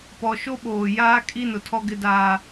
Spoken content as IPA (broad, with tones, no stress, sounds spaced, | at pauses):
p ɔ˨ ʃ o˦ ɓ oː˨ j aː˦ kʼ i˦ n ʊ˨ tʰ ɔ˦ ɡ ɪ˦ d aː˦